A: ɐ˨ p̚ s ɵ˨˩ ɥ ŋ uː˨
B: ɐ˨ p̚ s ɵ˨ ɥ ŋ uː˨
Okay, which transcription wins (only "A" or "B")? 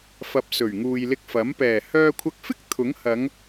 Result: A